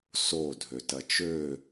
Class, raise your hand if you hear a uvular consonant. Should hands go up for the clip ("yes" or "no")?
no